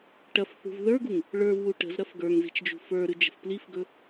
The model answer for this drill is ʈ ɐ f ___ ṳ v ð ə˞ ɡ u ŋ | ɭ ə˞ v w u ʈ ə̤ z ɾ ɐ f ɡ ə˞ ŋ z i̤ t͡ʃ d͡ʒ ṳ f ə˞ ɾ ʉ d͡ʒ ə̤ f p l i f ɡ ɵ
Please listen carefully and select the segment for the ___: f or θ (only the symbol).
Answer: θ